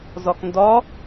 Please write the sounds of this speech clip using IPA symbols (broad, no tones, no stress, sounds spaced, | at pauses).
z ɒ k n d ɒ